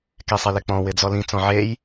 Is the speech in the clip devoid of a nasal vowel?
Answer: no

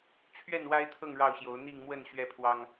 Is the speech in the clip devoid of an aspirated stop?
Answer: no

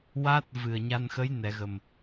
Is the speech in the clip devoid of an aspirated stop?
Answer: yes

